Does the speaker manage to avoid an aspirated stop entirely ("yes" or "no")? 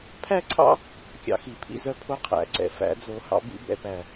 no